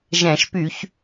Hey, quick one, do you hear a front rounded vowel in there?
yes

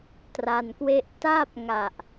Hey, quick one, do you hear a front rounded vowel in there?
no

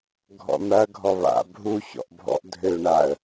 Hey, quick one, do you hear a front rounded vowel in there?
yes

